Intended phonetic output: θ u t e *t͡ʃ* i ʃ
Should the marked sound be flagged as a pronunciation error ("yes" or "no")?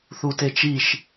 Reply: no